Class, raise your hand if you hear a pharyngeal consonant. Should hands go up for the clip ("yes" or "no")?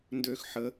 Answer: yes